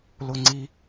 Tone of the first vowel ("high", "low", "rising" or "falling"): high